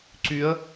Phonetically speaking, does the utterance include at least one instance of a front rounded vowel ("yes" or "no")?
yes